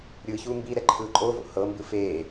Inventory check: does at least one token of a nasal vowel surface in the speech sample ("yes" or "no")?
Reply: no